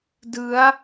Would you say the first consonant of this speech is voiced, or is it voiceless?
voiced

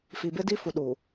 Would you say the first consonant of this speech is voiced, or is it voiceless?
voiceless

